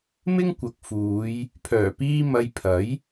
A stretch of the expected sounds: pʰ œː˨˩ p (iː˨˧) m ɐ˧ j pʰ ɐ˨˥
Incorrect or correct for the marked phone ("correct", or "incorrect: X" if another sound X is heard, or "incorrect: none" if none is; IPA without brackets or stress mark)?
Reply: incorrect: iː˧